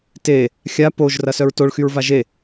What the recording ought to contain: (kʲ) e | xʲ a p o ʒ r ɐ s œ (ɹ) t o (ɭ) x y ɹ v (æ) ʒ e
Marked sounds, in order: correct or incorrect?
incorrect: t, correct, correct, incorrect: a

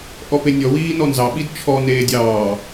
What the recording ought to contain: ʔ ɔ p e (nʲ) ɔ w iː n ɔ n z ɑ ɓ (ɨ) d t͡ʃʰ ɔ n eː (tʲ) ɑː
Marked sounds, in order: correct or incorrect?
correct, incorrect: i, incorrect: dʲ

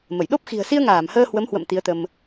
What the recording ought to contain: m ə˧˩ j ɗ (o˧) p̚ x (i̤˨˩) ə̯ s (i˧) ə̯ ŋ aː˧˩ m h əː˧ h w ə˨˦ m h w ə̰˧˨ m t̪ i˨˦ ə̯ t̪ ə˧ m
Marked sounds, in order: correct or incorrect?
incorrect: o˦˥, correct, correct

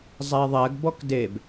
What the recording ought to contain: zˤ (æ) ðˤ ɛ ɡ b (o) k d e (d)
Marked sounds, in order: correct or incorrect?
correct, incorrect: ɔ, incorrect: b

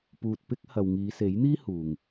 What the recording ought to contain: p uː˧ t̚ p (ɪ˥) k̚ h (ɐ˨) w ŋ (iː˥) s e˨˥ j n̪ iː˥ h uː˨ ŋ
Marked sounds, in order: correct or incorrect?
correct, correct, incorrect: iː˨˧

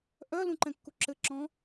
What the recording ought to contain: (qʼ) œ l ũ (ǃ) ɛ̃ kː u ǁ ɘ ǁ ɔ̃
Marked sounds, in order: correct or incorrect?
incorrect: ʔ, correct

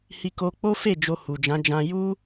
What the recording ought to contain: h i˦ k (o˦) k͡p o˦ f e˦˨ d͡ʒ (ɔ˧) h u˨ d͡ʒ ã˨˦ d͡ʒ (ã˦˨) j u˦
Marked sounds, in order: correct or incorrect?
correct, incorrect: o˧, incorrect: ã˧

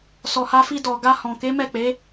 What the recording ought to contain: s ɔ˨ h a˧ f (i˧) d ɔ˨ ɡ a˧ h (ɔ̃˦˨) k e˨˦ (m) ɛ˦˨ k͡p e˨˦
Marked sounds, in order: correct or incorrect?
correct, incorrect: ɔ̃˨, correct

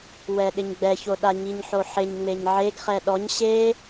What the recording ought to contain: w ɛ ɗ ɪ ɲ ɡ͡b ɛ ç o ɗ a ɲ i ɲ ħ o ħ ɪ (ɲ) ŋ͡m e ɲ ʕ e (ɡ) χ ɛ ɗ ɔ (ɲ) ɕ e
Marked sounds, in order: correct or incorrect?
correct, correct, correct

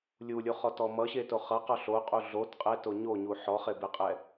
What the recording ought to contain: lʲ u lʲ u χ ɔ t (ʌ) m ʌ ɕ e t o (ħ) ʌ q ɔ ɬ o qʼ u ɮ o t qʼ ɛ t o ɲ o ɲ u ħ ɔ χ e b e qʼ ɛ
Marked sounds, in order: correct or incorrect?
incorrect: ɔ, incorrect: χ

